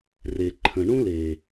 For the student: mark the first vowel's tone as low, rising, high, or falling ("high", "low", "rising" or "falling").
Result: low